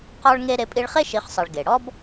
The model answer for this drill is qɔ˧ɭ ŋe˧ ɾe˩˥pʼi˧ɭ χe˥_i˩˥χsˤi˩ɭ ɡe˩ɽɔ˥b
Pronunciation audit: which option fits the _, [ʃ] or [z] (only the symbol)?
ʃ